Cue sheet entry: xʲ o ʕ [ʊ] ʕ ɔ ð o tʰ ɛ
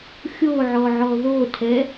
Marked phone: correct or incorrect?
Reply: incorrect